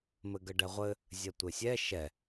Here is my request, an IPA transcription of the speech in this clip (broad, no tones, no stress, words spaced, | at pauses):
mɘɡəɖɛʁʷɘ | zʲɐtʷesʲɛ ʃɛ